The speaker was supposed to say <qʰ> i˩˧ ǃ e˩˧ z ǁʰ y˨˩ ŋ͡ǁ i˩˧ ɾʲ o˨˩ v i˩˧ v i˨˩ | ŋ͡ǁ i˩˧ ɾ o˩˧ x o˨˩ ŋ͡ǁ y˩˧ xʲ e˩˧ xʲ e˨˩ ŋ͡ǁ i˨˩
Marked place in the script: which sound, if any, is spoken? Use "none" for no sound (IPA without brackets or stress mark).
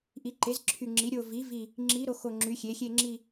ʔ